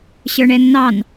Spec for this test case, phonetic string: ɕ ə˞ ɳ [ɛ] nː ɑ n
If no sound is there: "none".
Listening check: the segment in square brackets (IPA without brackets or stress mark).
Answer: ɛ